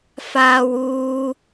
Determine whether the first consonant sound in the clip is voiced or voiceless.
voiceless